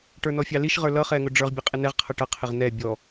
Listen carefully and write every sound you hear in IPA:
ʈ ə˞ n ɔ fʲ ɑ l i ʃ ʁ ə˞ l ʌ χ ɛ ŋ ʊ ɖ͡ʐ ə˞ ʁ bʲ ɛ qʼ ɪ n ɛ ʁ qʰ ʌ ʈ ʌ qʰ ɪ ʁ n ɛ bʲ ɔ

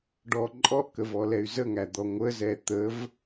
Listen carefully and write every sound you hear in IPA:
ɖ ɔ ǃʼ ɔ ʔ k ə v ɔ l ɛ y̯ z ə ŋ æ d̪ ɔ ŋʷ ə z ɛ t̪ ə v

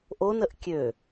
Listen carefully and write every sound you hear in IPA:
ʔ o n ə ʔ kʲ ø

